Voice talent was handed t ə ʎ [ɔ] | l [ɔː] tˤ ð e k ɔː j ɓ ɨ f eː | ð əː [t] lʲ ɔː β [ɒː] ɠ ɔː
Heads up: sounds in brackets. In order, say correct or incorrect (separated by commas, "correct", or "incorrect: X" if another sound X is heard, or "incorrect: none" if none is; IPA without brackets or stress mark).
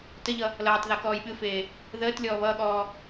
incorrect: ʌ, incorrect: ʌː, correct, incorrect: ʌː